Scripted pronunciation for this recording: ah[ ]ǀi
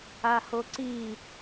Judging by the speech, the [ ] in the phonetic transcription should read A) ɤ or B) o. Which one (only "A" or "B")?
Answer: B